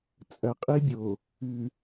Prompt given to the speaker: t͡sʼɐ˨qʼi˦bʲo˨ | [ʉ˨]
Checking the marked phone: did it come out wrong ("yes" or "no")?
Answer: no